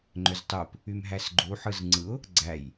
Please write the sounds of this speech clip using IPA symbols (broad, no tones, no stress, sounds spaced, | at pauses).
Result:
ŋ͡ǃ ø z tˤ o p | y m ɦ æ s ɡ͡ǃ u ħ ɯ z ŋ͡ǀ ɯ ʊ̯ | ɡ͡ǀ æ j